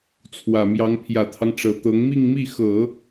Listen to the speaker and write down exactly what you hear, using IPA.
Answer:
t͡sʰwä˨˩mjɑ˧˥ŋ pʰjä˨˩t̪ʰɑ˦ŋ ʈ͡ʂɤ˨˩t̪ɤ˧˥ŋ mi˥˧ŋmi˥˩ xɤ˨˩˦

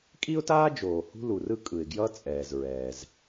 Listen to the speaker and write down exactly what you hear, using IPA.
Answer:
kʼi˥ʊ̯taː˥d͡ʒoː˩ hṳ˥lu˩rɯ˥ kʼɯ˩ɪ̯ɡjʌː˥t͡sʼɛː˩z ɹɛː˩z

